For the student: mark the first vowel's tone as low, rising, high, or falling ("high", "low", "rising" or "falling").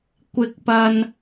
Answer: low